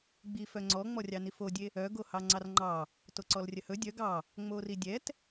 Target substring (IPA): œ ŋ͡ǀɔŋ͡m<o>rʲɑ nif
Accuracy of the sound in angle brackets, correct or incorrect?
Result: incorrect